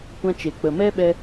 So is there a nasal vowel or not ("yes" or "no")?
yes